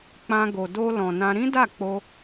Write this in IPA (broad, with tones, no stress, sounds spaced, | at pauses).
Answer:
k͡p ã˧ ɡ o˨ d o˧ l ɔ̃˨ n ã˧ ɾ ĩ˦ d a˦˨ k͡p o˧